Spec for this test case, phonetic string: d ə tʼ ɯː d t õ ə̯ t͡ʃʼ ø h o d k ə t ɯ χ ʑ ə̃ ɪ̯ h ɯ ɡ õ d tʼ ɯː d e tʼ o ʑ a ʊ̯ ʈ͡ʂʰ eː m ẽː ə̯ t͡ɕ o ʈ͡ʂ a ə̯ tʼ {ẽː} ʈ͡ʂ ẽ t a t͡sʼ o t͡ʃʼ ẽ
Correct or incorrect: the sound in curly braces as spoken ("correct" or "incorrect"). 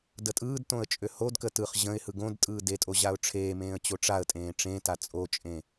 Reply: correct